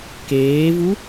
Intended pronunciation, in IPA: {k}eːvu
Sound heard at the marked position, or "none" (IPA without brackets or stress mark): k